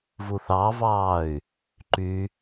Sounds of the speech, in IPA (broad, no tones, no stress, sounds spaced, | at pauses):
v u θ ɑ v ɑː y̯ | ǃ y